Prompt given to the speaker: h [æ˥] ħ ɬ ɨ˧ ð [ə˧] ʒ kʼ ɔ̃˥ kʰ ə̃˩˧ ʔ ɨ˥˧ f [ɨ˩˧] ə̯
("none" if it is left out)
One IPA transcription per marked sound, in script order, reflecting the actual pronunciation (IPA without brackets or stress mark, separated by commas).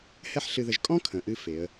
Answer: ɛ˥, ə˧, e˩˧